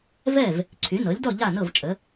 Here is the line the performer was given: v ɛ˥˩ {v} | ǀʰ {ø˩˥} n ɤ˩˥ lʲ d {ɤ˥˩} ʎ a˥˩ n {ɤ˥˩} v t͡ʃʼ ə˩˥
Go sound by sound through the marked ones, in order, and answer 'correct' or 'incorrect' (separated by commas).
correct, incorrect, incorrect, correct